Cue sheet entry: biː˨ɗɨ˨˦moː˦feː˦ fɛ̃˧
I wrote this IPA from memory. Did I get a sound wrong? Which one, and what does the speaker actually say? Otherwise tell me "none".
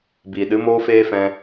none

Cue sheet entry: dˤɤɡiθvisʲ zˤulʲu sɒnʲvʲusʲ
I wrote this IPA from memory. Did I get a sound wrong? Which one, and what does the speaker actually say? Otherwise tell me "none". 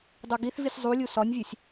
ɤ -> o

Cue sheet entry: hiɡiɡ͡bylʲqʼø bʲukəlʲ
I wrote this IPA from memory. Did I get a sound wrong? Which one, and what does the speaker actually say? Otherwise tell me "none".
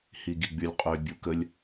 none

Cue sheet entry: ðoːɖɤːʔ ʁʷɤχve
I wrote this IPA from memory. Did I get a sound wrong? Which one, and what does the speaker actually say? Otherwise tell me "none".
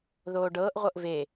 χ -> ʔ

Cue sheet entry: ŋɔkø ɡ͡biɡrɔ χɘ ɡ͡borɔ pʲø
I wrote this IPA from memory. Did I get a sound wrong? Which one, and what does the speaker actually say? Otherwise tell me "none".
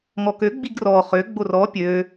ɘ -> ø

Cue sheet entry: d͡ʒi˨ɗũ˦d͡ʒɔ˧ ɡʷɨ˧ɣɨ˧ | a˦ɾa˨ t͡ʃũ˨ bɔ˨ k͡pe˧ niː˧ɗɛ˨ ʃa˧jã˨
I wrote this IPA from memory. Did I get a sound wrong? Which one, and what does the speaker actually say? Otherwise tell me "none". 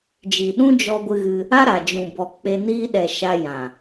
t͡ʃ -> d͡ʒ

